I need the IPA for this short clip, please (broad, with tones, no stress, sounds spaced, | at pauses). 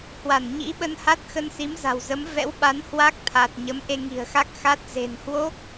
h w a˧˩ n ɲ ḭ˧˥ ɓ ə˧ n h a˦˥ t̚ x ə˧ n s i˨˦ m z a̤˨˩ w z ə˨˦ m v ɛ̰˧˥ w ɓ a˨˦ n h w a˦˥ k̚ t̪ʰ a˨˩ t̚ ɲ ə˨˦ m ʔ e˧ ŋ i̤˨˩ ə̯ x a˦˥ k̚ x a˦˥ t̚ z e̤˨˩ n h w o˦˥ k̚